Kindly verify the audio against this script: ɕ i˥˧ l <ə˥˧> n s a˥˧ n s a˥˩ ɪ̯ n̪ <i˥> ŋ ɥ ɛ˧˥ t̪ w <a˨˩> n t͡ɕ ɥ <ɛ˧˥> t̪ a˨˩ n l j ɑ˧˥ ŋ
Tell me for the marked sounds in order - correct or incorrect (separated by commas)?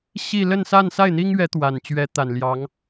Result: correct, correct, correct, correct